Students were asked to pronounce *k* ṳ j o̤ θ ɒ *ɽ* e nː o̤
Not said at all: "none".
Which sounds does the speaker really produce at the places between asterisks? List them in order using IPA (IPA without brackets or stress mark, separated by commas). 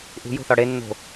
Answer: ʔ, ɽ